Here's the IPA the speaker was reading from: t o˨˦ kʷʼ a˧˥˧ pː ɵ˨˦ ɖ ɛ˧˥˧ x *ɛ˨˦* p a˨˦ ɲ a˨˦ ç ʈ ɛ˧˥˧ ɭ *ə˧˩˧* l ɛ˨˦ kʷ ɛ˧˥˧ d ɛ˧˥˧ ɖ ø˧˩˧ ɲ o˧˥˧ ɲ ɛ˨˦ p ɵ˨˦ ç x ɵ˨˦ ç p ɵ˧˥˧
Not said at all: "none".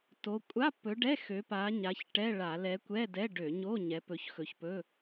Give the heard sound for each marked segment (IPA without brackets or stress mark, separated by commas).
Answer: ø˨˦, a˧˩˧